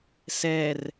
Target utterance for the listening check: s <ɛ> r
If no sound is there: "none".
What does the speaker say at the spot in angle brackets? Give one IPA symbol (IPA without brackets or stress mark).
ɛ